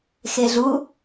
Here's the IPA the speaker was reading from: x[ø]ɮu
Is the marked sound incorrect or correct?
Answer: incorrect